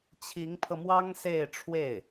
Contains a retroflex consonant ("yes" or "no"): yes